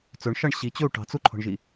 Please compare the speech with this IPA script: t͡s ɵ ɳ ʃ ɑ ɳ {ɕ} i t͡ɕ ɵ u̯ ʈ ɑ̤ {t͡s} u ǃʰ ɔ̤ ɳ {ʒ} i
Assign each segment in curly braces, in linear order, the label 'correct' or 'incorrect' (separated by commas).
correct, correct, correct